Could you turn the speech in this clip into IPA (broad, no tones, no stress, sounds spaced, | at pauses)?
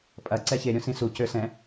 pʼ ɐ ǀ ɛ ç e ɾʲ õ s ĩ s u c ø s ɛ̃